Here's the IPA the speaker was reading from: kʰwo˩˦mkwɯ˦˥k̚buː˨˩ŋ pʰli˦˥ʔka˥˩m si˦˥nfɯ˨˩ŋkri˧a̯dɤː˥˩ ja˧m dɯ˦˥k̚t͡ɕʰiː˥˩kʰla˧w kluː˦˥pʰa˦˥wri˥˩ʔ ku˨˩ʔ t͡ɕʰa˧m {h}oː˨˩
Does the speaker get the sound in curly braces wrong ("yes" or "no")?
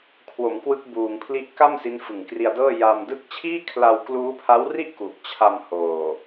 no